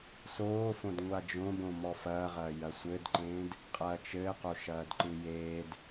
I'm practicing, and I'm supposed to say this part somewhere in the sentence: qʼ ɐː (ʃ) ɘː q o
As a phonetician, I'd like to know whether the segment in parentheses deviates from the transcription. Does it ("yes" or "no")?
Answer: yes